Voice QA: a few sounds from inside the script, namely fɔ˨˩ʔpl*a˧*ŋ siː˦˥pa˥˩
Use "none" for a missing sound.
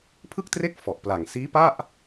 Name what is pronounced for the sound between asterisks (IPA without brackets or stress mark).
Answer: a˨˩